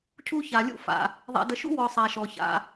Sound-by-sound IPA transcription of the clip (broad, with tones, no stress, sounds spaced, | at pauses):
cʰ u˥ ç a˧ lʲ ṵ˥ f a̰˧ | ðˤ ɛ̰˧ d ə˧ ʃ ṵ˥ w ɔ˧ sˤ a˧ ʃ ɔ˧ ç a̰˧